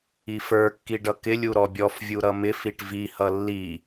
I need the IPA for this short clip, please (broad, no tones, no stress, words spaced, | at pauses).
ifə˞kːi ɖʌkɪlʲu ɾɔbʲɔfvʲu ɾʌmɪfiʈ vihʌ lːi